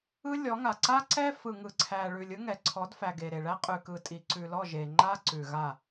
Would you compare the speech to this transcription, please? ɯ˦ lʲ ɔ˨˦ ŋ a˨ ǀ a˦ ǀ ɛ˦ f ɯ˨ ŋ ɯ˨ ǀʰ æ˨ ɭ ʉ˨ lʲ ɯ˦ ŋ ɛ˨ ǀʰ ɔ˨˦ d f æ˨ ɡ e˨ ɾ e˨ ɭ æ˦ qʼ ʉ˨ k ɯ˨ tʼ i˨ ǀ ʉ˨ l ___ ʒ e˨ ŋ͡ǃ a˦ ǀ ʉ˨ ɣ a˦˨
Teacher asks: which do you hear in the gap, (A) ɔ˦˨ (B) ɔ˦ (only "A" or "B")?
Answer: A